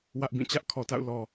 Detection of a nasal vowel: present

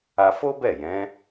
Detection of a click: absent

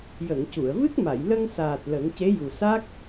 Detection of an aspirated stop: absent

